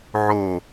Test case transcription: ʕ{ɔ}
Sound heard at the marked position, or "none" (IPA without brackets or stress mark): o